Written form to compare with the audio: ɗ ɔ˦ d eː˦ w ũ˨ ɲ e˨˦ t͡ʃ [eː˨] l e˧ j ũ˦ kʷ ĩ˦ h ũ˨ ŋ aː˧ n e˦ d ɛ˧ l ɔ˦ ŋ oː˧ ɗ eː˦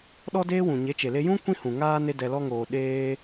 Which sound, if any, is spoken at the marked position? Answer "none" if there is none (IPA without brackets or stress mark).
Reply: e˨